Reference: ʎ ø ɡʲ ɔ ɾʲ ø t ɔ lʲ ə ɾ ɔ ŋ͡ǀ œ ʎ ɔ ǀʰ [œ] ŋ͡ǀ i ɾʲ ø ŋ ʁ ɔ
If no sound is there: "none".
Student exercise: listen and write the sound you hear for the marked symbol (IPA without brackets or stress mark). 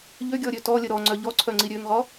œ